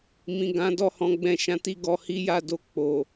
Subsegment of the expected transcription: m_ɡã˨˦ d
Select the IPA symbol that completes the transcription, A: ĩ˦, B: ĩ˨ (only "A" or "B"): B